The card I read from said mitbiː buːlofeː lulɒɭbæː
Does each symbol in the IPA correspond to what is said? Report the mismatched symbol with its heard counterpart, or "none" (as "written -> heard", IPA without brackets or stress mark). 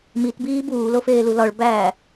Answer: none